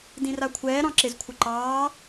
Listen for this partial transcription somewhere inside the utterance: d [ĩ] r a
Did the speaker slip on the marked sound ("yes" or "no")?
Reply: no